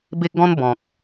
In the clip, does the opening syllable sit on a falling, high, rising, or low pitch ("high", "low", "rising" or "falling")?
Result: high